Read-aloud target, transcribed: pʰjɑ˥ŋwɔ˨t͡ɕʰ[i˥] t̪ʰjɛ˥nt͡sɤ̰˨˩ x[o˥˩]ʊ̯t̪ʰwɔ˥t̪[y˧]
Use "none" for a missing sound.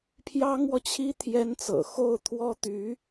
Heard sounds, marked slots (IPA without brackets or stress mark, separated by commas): i˥, o˥˩, y˧˥